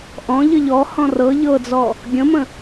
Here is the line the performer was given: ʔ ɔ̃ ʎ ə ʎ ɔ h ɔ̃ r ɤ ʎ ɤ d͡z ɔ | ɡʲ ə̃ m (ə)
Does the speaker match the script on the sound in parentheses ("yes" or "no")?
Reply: no